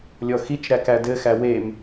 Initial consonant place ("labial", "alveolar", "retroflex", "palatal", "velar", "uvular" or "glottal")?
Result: alveolar